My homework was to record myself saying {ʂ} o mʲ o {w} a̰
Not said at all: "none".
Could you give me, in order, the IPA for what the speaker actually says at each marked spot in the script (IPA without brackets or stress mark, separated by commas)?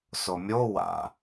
s, w